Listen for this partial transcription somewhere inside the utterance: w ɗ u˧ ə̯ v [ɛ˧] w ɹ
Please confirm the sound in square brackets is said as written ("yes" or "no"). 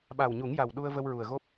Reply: no